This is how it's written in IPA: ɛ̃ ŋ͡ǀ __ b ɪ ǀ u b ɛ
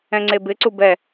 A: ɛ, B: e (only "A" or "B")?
B